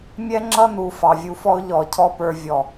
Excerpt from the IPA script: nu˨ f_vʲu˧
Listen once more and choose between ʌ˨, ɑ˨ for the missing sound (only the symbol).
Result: ɑ˨